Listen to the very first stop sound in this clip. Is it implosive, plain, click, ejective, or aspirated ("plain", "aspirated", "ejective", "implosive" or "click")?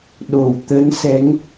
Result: implosive